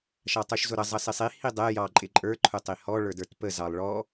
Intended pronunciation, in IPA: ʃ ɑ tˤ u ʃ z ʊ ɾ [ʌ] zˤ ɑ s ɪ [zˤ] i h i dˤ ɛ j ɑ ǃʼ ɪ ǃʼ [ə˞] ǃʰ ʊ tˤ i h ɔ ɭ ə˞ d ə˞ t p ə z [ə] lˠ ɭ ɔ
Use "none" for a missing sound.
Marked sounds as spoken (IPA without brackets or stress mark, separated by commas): ʌ, sˤ, ə˞, ɑ